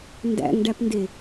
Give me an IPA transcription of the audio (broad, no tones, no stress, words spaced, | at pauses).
ndæ̰ŋɖæpnde